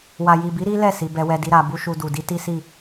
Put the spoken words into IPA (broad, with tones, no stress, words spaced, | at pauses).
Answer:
wa˨ji˨bi˨˦ ɾi˦lɛ˦˨ si˨˦bɛ˦wɛ˦di˦ ɾa˧ bu˦ʃu˧du˨ di˨˦ti˦si˦˨